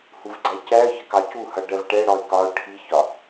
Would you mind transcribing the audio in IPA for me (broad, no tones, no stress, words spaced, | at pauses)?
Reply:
huvɡ͡ǀæcæə̯çə kɑcuhʌ ɖɜvʈɛɽɔɪ̯ kɒʊ̯ ʈʰiçɒ